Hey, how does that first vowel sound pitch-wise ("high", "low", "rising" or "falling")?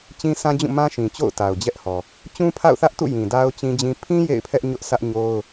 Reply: high